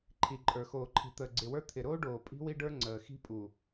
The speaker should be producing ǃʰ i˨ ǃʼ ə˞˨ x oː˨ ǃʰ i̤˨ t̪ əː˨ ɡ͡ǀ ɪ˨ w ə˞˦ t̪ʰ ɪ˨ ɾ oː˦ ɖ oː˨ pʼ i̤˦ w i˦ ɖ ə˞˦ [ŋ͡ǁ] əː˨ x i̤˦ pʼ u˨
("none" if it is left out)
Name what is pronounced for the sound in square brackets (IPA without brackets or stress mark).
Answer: ŋ͡ǀ